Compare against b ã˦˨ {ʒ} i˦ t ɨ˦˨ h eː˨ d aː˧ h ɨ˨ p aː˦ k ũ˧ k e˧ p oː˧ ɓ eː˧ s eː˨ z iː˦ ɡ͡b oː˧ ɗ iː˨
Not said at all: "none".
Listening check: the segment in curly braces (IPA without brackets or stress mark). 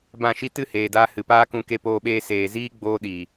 ʃ